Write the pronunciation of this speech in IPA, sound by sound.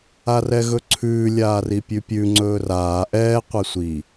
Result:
a r ɛ ɣ ɵ ǀʰ ʉː lʲ aː r i pʲ ʉ pʲ ʉ ŋ͡ǀ ɵː r aː ʔ ɛː qʷ ɛ sʷ i

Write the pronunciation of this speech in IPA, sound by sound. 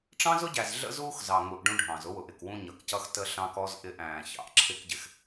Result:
ʈ͡ʂ ɑ̃˦ z ʊ˦ ɟ æ˨ z ɮ ə̰˦ z uː˦ x z ɑ˨ ŋ u˨ ʔ ɖ ũ˦ ɖʱ ɑ̃˨ z ʊ˦ w ʊ˨ ʔ ɪ˨ k w ũ˦ ɲ ʌ˨ k c ʌ˦ x t ə˦ ɬ ɑ̃˦ k ɔ˦ z ʔ ɪ˦˨ ʔ æ̃ː˨ ç ɑ̰˨ ʔ ǁʰ ɪ˦ k ɟ ɪ˨ x

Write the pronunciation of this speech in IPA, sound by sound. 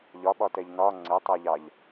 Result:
ʎ ɒ ɓ ɒ t ɛ ʎ n ɒ ŋ͡ǀ ɛ tˤ ɜ ʎ ɑ ʎ

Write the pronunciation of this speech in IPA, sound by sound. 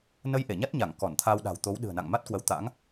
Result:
n ə˧ j ʔ e˧˩ ɲ a˦˥ t̚ ɲ a˧˩ ŋ k ɔ˧˩ n t̪ʰ a˧ w ɗ a̤˨˩ w t̪ o˨˦ w ɗ ɨ̤˨˩ ə̯ n a̰˧˨ ŋ m a˦˥ t̚ k w ə˨˦ w t̪ a̰˧˥ ŋ

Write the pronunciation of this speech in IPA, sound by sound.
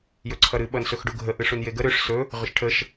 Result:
j ɵ ǀʰ ʌ ɾ ɨ ɓ ʌ n s ɵ x ɖ u ɡʱ ə ʔ ɨ ʂ u n j e ɡ ə ɾ ʏ ʂ s ɵ | ʁ ʏ ʃ ʈʰ ə ʃ

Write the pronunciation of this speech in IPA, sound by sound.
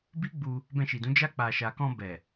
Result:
b i˦ ɡ͡b u˧ | b ɛ̃˧ ʃ i˨ d ũ˨˦ d͡ʒ a˧ k͡p a˨ ʃ a˨ k ɔ̃˧ b ɛ˨

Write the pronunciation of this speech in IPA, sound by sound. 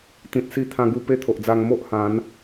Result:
t̪ ĩ˨ t̚ s i˧ t̪ʰ ã˧ ɡ u˧ p e˦ t̪ʰ o˨ ʔ d͡z a˧ ŋ m o˦ ʔ h ã˨˦ n

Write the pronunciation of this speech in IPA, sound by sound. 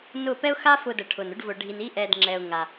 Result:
n ʊ˦˨ p ɛ˦ ʊ̯ x a˦ f ʊ˧ d ə˨ ʈʰ ʊ˨ n ʊ˦ ɖ v ʊ˧ ɖʱ i˧ n i˦ ʔ ɛ˧ d ŋ͡ǁ ɛ˧ ʊ̯ ŋ a˧

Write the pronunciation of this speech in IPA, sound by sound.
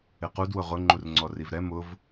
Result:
ɪ q u d w ʊ ʁ ʊ ŋ͡ǃ u r ŋ͡ǀ ɔ r i v ɾ ɛ m ʊ v

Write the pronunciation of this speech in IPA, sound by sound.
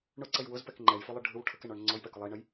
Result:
ɳ ʊ ǀ ə j w ʊ z p ɛ k ŋ͡ǃ ɛ j f ʊ lˠ ɯ ɖʱ ɯ w ʈʰ ə k ɛ ɳ ɔ ɳ ŋ͡ǀ ɔ j p ɛ k ʊ lˠ ə i̯ ɳ ə j

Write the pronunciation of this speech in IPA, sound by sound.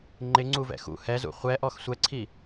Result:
ŋ͡ǃ ɪ ŋ͡ǀ u v ɛ̰ x ṵ h ɛ z ṵ χʷ ɛ ʔ ɔ x sʷ ɛ ǀʰ i

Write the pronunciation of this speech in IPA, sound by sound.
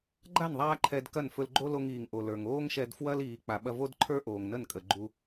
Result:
ɡ͡ǃ a˦˨ n ðˤ aː˦ ǃʰ ɛ˧ d k ɐ˦˨ n f ɵ˧ l ɡ͡ǃ o˦ l o˧ ŋ iː˨ ŋ ʔ o˨ l ə˞˨ ŋ oː˦ ŋ ʃ ɛ˧ d f w ɐ˦ l iː˨ k͡p a˨ ɓ ɐ˧ v o˦ d ǃʰ ə˞˦ ʔ oː˨ ŋ n ə˦˨ n kʼ ə˨ ɡ͡ǃ u˧

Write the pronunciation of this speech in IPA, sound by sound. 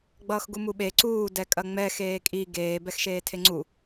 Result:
ɡ͡b ʌː x ɡ u m u ɓ e ǀ uː d ɛ kʼ ɐ ŋ͡m ɛ x eː kʼ i ɡ eː b ɛ x ʃ eː tʰ e ŋ͡ǀ u

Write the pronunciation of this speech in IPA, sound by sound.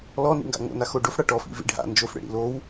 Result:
l ɔ n ḭ ŋ ɡ a̰ ŋ o̰ n a x o ɖ o f ɽ a ʈ ɔ f ḭ v ḭ ɖʱ a̰ n d͡ʒ o f ɽ ḛ ɽ ḭ l o w

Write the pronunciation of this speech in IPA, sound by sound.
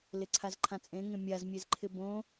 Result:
l ɪ ǀʰ a z ǃʰ ã t͡sʼ ẽ ŋ ẽ mʲ a z mʲ e z ǃʰ ɪ b õ

